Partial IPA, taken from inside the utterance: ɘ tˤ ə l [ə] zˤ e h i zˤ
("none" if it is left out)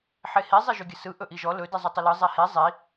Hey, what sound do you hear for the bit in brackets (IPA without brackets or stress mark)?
ɯ